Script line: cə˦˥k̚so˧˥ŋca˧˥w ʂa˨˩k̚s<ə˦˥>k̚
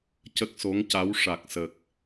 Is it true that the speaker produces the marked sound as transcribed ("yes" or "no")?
no